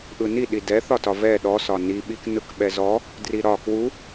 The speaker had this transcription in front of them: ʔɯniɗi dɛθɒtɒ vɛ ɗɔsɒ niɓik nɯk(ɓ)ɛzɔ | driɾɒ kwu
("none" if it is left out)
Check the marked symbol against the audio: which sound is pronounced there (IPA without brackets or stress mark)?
ɓ